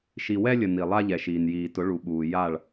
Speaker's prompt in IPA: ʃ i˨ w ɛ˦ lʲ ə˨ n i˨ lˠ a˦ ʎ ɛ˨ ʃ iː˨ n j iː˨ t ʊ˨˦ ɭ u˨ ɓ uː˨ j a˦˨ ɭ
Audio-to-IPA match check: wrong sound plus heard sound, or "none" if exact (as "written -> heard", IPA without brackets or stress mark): none